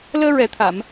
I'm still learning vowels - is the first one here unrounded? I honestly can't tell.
yes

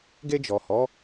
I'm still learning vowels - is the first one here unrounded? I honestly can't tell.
yes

